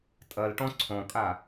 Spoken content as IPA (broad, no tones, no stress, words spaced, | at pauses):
tʼɐlʈɔ̃ ǀʰɔ̃kʼa